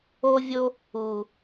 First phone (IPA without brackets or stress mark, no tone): o